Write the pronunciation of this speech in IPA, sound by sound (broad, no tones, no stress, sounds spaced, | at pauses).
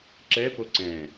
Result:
ǁ ɛ p o ǀ ɛ̃